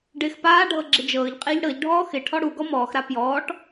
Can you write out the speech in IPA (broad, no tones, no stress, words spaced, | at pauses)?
ɖɪːxpaːɖʱɤ ɡ͡ǁɪd͡ʒɤːʎqʼɪːʎ ɽɤʎɖʱɔː xɪ ʈʰɔɽuɡɔ mɔːxɾa pjɔːʈ